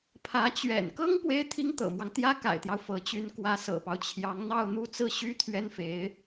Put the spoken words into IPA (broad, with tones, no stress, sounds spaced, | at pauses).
pʰ ä˧˥ t͡ɕ ɥ ɛ̰˨˩ n k ɤ˥ ŋ p w e˥ ɪ̯ t̪ʰ i˥ ŋ t̪ ɤ̰˨˩ m w ɑ˦ ŋ t̪ j ä˥ k a̰˨˩ ɪ̯ t̪ j ɑ˦ ʊ̯ f ɤ˧˥ t͡ɕ y˧˥ n k w ä˧˥ s ɤ̰˨˩ p ɑ˦ ʊ̯ t͡ɕʰ j ɑ˧˥ ŋ n̪ ɑ˥˧ ʊ̯ n̪ u˥˧ t͡s ɹ̩˥˩ ɕ y˥ t̪ʰ ɥ ɛ˥ n f e˧˥ ɪ̯